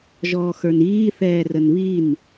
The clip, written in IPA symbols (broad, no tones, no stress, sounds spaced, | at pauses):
ʒ ɔː x ə˞ n iː θ ɛː r ə n β i n